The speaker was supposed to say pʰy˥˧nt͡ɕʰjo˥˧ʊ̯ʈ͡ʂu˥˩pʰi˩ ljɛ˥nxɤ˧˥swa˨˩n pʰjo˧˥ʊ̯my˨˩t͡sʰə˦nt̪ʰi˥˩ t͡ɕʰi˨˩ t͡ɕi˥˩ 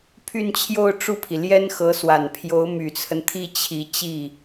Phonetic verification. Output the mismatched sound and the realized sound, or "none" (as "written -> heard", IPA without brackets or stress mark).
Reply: none